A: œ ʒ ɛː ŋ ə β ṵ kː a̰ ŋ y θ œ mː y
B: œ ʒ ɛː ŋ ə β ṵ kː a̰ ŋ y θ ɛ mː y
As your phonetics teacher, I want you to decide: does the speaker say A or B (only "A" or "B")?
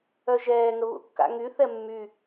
B